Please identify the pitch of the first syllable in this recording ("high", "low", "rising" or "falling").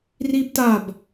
high